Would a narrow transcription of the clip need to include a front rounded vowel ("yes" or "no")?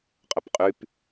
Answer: yes